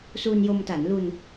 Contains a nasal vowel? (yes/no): no